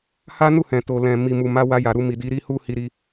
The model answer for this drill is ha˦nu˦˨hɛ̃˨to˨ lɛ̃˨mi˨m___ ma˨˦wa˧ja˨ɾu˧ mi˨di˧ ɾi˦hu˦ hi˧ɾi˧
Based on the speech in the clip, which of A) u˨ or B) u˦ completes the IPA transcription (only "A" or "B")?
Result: A